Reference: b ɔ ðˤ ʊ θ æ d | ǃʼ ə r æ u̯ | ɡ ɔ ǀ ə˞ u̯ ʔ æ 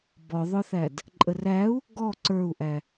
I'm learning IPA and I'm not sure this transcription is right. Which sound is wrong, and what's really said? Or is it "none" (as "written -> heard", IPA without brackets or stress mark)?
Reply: none